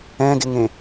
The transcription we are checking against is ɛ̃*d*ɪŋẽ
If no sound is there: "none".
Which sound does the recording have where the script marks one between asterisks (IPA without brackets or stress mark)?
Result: d